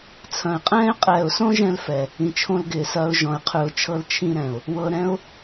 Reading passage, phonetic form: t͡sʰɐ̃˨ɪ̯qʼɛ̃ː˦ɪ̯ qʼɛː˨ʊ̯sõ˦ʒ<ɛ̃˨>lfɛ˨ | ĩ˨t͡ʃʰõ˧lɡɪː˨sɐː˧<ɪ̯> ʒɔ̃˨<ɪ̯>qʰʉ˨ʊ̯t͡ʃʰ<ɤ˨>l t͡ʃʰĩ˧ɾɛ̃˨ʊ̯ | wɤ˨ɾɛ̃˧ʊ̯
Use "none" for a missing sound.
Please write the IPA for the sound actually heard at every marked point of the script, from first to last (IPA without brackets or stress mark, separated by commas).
ɛ̃˧, ʊ̯, ɪ̯, ɤ˧